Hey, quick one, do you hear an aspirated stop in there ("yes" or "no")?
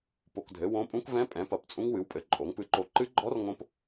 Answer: no